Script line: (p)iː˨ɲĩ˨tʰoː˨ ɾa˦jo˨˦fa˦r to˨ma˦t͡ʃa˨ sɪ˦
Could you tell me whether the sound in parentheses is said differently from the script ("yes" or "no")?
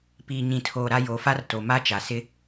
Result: no